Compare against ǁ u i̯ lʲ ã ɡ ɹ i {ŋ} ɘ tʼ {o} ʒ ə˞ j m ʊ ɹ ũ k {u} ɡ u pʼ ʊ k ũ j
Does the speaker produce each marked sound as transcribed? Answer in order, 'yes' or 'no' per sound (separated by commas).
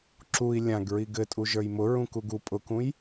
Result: no, no, yes